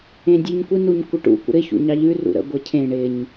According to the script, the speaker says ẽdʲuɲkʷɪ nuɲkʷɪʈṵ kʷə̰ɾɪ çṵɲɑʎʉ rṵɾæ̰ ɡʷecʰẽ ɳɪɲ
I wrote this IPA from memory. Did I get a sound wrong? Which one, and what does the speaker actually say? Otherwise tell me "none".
æ̰ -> ə̰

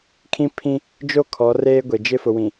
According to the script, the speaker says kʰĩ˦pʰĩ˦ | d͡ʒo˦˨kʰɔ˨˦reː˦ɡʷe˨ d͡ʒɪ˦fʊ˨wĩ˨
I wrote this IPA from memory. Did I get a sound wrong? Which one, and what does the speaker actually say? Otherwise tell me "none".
none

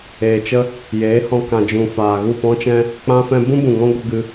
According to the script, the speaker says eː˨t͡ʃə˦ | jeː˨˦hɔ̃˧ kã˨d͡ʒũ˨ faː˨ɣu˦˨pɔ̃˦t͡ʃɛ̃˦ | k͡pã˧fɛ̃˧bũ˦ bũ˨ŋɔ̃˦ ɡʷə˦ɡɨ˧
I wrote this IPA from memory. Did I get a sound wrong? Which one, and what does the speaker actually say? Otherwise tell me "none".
none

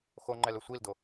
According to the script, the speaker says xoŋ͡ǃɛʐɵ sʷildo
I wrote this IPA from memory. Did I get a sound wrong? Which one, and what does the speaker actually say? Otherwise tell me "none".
ʐ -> l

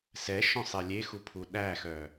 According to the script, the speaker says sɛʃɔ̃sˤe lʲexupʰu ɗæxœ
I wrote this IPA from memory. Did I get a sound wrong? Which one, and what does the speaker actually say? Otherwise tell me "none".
none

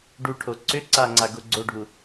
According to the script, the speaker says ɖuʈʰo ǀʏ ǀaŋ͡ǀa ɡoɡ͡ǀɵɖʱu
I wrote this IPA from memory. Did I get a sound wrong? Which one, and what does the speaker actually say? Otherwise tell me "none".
ɵ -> o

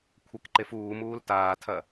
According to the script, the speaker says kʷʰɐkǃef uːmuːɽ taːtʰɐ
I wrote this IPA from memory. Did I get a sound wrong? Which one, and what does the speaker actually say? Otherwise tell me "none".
ɽ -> l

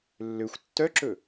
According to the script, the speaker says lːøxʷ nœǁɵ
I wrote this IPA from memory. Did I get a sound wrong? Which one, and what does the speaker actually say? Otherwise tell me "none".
n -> tː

